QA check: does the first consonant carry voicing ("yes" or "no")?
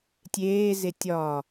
no